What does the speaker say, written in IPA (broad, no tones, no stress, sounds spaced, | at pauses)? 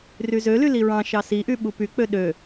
r y z ø l y l i ɹ ɑ̃ ʃ ɑ s i ʔ y ɓ u p y k͡p ø ɗ ø